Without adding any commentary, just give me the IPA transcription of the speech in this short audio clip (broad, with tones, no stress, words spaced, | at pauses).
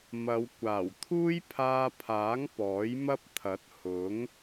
mɐ˨˧w kʷaː˨˩wt̪ʰuː˥j pʰaː˧pʰaː˨˥ŋ pɔː˨˥jmɐ˥p̚t̪ʰɐ˨˥t̚ hʊ˨˥ŋ